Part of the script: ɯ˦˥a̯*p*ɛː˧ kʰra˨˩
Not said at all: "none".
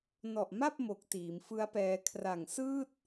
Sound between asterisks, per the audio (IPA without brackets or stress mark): p